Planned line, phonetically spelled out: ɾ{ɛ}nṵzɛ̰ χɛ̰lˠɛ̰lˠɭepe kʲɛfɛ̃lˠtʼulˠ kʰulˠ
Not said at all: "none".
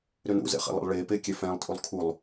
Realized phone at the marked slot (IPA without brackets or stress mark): ʏ